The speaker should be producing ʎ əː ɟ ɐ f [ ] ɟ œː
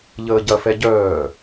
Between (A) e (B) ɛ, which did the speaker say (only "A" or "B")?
B